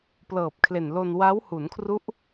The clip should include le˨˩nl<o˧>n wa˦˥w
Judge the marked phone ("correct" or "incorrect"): correct